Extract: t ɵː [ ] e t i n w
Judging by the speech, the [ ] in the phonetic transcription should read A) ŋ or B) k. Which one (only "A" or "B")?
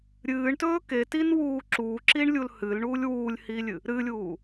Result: B